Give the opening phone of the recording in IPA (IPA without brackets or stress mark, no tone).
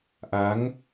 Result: ʔ